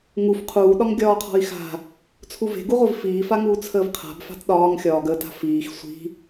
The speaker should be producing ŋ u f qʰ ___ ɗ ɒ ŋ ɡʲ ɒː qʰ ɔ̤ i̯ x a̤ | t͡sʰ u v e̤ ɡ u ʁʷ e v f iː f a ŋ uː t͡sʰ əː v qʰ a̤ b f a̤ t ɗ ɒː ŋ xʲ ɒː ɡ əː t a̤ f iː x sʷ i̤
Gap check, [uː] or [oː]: uː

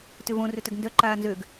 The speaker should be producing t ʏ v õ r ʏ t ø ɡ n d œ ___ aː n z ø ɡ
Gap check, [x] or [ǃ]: ǃ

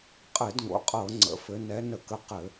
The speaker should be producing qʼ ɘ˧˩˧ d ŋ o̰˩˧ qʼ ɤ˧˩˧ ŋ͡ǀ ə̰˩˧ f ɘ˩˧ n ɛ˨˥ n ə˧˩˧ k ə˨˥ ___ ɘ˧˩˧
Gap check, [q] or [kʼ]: q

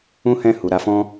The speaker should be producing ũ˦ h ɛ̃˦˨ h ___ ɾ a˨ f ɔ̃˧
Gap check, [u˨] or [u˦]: u˨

